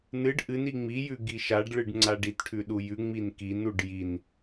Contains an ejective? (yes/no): no